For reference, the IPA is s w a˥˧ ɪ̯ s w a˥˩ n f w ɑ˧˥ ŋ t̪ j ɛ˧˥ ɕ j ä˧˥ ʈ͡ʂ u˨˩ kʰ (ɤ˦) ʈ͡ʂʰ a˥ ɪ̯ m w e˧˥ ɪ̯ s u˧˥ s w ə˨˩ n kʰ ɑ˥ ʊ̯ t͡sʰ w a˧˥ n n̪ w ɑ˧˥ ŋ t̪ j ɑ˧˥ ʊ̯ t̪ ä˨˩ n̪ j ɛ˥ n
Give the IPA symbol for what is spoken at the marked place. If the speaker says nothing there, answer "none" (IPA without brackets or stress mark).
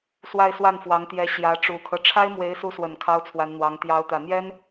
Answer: ɤ˦